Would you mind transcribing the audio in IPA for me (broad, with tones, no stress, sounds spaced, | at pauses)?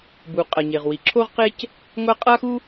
b u˩ qʼ ɐ˩ ɲ e˩ ʁ w i˩ ǁʰ o˥ ʁ q e˥ c | ŋʷ a˥ qʼ a˥ x u˥